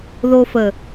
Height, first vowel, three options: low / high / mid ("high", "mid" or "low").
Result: mid